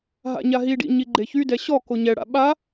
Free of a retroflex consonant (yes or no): no